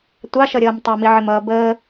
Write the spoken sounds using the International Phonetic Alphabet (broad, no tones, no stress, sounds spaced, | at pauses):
tʷ ɑ ʃ ʌ ɾʲ ʌː m tˤ ʌ m i ʕ ɪ m ʌː b əː